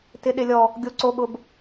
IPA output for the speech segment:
t ɪ˨ ɗ ɪ˨ lʲ ɔ˨ | ɡʲ o˨ ǀ o˨ ɠ ʊ˨ b

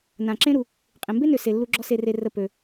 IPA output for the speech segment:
n ã˩ ǁ ẽ˦ ɾ u˩ | qʼ ẽ˩ m b e˥ n ø˩ s e˨ lː u˦ ɡ͡ǁ ɔ˦ s e˨ r e˨ r ə˨ p ø˩

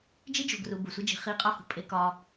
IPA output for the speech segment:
d͡ʒ i˥ d͡ʒ o̤˨ ɡ r u˨ b u˩ sʷ i˦ d͡ʒ i̤˨ χ i˦ qʼ ɒ˥ h ṳ˨ pʼ e˥ k ɒ˥

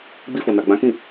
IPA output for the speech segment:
ɡ͡b i˧ f o˨ n a˨ ɡ͡b ã˨˦ k ĩ˦˨

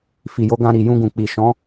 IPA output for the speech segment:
f i˨ j o˨˦ ɡ ã˧ ɾ i˨ j ũ˧ ɡ ũ˨ k͡p i˨ ʃ ɔ̃˨˦

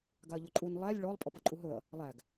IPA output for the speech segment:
ɡ a ɐ̯ ʎ ʊ ǃʼ u n lˠ æ lʲ ɭ ɔ lˠ pʼ ɔ p ʌ ǃʼ u ɦ ɵ ɐ̯ | lˠ æ ɡ

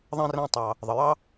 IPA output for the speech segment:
ðˤ ɛ̃˥ r æ̃˦ tˤ ɑ˩ | ðˤ ə˩ j ɑ˥

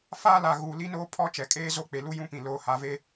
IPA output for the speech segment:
f aː˦ l a˨ ɣ u˨ l i˦ n o˦ pʰ ɔ˦ t͡ʃ ɛ˨ kʼ eː˦ z o˦ k͡p e˨ l u˦ j ũ˦ p ĩ˨ l oː˨ h a˨ v e˦

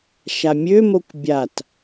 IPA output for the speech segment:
ʃ a mʲ ø m o kʷ bʲ a t

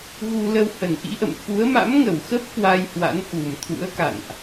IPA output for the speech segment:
ɣ u˧ l ə˧ w h ə˨˩ n ʔ ḭ˧˥ ʔ ə̰˧˨ m f u˨˦ ə̯ m a̰˧˥ m ŋ ə˧˩ w x ə˦˥ p̚ k w a˧ j h w a̰˧˥ n ʔ u˨˩ m t̪ʰ ṵ˧˥ ə̯ k a̰˧˨ n ʔ

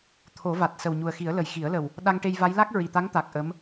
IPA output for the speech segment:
t̪ʰ o˨˩˦ v a˨˩ t̚ s ə˨˩ w ɲ u˨˩ ə̯ x i˨˩˦ ə̯ l ə˨˩ j x i˨˩˦ ə̯ l ə˨˩ w | ɗ a˧ ŋ ʈ e˧ j v a˧˥ j l a˦˥ k̚ ɹ i˨˩ t̪ a˧˥ ŋ t̪ a˨˩ k̚ ʔ ə˧˥ m

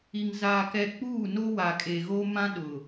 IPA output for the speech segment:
i˨ ŋ z aː˨ k ɛ˨ k͡p uː˦˨ n o˦ w a˨ kʼ e˨ ɣ o˦ m ã˦ ɗ ʊ˨

